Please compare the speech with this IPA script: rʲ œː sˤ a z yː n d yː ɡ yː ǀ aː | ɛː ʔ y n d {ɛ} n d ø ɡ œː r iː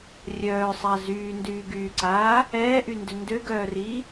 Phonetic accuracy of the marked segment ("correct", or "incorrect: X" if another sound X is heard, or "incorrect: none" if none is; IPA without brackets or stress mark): incorrect: ʏ